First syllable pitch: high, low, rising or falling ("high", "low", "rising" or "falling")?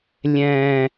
low